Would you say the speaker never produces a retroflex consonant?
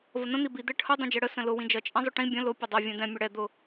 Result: no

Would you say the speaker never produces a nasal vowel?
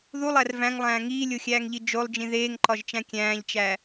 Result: no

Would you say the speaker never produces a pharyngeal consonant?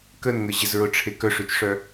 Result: yes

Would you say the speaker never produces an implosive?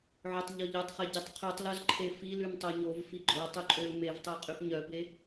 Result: yes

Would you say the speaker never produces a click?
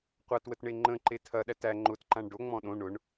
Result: no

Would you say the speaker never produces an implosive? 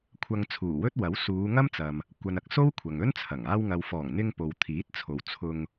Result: yes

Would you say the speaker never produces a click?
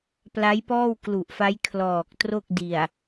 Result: yes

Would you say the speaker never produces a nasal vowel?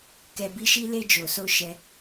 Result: yes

